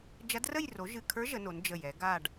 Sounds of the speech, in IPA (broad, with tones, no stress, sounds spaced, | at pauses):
d͡ʒ ɐ˧˥ d r ə˥˨ j r o˩˥ ʒ ɨ˧˩ kʰ ə˞˧˥ ʒ ə˩˥ n o˩˥ n d͡ʒ ə˧˩ j ɛ˩˥ ɡ a˥˨ ɖ